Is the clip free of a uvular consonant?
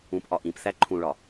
yes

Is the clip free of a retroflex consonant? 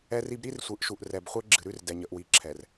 yes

